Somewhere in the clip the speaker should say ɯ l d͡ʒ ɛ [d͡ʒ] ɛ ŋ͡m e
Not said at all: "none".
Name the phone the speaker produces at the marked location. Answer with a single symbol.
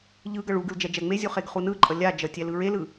d͡ʒ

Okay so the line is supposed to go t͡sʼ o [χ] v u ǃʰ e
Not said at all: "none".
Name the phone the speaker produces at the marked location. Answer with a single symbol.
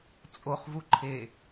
χ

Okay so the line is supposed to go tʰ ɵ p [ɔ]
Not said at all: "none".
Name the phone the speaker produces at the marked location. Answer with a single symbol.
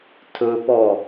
ɔ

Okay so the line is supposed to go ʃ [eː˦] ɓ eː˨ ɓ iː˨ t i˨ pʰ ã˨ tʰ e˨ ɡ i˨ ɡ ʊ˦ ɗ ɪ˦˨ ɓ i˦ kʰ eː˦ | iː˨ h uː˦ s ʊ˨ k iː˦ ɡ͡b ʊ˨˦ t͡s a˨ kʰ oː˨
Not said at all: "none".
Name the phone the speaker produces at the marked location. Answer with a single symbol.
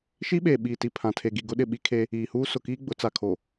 iː˦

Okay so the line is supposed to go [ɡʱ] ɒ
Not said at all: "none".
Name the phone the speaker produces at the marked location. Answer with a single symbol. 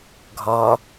ɡʱ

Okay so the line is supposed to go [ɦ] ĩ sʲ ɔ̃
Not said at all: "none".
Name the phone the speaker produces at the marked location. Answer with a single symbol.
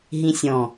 ɦ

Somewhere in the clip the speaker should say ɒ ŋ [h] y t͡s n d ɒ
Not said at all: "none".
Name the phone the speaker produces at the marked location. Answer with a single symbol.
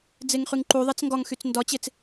x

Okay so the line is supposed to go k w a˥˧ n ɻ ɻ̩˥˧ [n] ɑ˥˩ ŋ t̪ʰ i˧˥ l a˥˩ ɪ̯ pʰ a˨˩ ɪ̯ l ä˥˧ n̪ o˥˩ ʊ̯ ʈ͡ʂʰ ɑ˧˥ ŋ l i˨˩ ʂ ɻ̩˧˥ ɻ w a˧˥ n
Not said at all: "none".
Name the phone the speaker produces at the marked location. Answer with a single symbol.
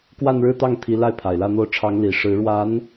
t̪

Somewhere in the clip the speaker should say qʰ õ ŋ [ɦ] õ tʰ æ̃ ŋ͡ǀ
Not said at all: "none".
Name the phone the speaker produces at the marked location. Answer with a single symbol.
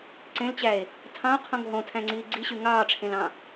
ɦ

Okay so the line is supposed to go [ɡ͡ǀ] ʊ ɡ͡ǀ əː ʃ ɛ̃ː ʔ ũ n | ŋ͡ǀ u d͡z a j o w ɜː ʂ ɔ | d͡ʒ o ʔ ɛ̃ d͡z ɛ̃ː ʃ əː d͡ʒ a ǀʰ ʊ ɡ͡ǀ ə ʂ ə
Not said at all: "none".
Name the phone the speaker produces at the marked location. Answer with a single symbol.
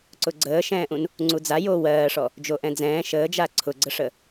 ǀ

